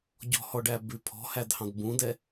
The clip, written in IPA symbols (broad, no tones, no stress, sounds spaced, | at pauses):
ɟ ɔ̤ h ɔ ɖ æ b ʉ pʰ ɔ̤ h æ d h ɑ̃ d b ũ d ɛ